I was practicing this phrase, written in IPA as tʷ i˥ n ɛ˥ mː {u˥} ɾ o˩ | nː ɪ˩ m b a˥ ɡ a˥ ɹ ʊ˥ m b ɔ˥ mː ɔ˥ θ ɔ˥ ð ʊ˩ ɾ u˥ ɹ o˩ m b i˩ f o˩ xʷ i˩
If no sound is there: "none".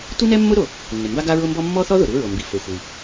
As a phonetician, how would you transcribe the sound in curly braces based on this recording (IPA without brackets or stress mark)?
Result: ʊ˥